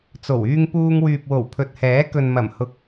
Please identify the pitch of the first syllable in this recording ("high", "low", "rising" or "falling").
low